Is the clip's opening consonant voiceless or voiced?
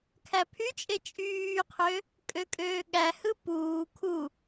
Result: voiceless